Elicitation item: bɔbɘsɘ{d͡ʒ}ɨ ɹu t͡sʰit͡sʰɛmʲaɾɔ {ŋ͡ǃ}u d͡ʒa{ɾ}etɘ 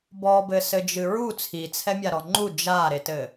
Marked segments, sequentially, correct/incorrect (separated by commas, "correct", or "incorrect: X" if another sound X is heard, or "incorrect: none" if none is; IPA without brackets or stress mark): correct, correct, correct